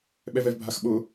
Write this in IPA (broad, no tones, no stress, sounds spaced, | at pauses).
ɓ ɛ v ɛ v bʱ a x ɓ ʊ